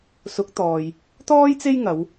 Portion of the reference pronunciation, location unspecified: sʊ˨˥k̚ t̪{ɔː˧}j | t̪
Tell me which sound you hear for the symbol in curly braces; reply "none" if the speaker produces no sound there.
ɔː˧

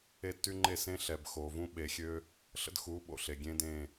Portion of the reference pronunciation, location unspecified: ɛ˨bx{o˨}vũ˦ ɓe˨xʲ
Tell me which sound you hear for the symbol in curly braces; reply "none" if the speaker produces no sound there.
o˨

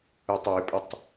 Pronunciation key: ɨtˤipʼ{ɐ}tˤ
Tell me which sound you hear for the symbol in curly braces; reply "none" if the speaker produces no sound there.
ɐ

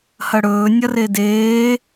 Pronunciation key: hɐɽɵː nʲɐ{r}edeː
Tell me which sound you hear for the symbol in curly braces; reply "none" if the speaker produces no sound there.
r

